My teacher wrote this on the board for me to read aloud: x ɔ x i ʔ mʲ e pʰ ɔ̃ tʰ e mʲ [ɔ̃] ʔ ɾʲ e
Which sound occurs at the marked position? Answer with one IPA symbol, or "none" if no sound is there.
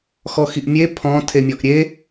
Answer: ɔ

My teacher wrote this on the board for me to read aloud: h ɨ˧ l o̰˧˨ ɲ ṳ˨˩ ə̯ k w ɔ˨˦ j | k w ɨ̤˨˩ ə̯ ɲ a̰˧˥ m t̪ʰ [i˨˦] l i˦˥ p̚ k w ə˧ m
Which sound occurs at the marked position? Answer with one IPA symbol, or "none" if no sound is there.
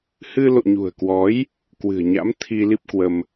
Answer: i˧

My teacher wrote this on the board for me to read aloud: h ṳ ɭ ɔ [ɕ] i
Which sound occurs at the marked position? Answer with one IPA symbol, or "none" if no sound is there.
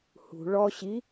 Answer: ɕ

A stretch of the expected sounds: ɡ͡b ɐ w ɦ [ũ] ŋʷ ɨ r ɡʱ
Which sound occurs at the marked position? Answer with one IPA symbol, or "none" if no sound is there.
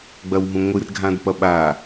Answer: ũ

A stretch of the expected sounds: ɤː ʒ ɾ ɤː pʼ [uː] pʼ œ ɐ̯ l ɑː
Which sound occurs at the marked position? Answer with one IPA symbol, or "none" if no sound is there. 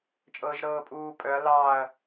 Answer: uː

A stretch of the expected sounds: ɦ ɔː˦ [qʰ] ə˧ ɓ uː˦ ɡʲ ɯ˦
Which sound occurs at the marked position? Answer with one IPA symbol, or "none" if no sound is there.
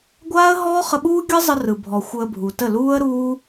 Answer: χ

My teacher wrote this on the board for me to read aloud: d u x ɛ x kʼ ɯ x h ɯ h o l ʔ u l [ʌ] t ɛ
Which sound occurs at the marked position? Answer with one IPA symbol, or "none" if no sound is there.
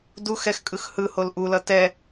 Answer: ʌ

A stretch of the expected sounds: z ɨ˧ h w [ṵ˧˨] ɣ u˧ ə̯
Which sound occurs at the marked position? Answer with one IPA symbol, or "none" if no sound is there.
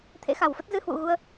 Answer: ṵ˧˨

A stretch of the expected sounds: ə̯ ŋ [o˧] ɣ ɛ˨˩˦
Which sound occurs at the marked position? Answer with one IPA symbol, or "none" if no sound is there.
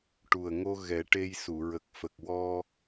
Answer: o˧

